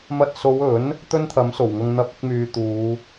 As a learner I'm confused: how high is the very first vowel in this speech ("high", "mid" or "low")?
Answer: low